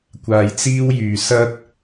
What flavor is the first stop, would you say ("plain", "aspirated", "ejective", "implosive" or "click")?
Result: plain